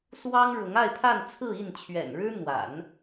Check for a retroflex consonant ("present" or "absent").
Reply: present